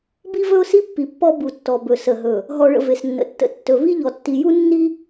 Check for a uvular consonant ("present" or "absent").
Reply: absent